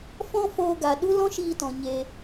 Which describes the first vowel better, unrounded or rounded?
rounded